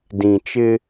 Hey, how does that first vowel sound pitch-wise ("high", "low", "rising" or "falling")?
low